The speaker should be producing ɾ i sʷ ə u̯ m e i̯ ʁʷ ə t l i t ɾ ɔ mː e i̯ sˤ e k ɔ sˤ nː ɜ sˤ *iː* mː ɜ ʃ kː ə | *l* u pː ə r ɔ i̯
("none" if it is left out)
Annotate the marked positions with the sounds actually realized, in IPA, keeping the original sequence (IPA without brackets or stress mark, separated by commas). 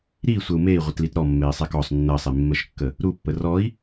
i, ɾ